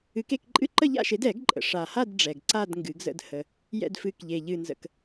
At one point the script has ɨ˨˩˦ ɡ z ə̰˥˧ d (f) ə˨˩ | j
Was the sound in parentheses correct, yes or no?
no